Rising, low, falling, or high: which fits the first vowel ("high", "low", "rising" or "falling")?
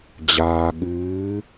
low